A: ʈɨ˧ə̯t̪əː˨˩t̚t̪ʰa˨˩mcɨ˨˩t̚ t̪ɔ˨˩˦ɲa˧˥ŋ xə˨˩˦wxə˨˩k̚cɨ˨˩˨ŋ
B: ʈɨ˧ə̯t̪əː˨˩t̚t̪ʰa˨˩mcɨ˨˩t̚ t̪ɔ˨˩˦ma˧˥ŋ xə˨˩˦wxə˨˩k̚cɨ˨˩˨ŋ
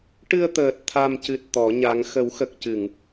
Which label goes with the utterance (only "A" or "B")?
A